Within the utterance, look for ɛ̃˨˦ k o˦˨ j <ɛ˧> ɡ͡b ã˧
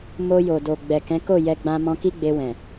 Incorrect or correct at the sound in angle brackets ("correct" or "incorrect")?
correct